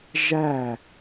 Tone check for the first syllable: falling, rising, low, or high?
falling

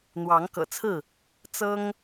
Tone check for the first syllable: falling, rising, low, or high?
rising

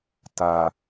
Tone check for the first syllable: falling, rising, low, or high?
low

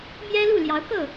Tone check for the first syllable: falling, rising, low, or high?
high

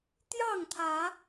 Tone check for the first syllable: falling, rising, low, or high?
falling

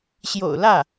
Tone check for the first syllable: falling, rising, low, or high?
low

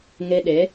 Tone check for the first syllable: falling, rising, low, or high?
high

